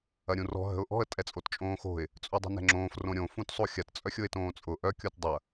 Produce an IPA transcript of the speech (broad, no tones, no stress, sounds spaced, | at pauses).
ɐ ɾʲ ũ r ɔ̤ ɦ ə̤ ʊ̯ ʔ ɔ̤ ə̯ tʼ ɛ t͡sʼ o t t͡ʃʼ õː x o̤ ɪ̯ | t͡sʼ u dˤ ə̤ n ɛ̤ ŋ͡ǁ õː f r õ ɾʲ õ f ũ t sˤ o xʲ ɐ t t͡sʼ œ xʲ ʊ ɪ̯ t õː t͡sʼ ʊ ʔ œ kʲ o t dˤ ɐ